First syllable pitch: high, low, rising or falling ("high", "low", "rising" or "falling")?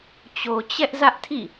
low